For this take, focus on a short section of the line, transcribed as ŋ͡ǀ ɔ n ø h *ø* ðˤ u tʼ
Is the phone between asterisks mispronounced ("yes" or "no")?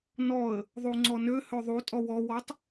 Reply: no